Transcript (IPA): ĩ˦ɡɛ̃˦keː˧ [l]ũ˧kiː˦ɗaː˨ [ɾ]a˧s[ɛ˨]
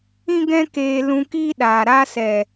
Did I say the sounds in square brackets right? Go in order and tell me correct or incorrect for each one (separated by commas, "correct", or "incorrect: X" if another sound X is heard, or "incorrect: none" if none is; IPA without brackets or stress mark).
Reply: correct, correct, correct